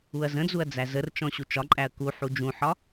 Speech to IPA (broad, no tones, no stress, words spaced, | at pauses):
uɐ̯zə̃d͡zuɐ̯ d͡zæzərt͡ʃɔ̃ ɕut͡ʃɒǃʼæɐ̯ ku ħud͡ʒũħɒ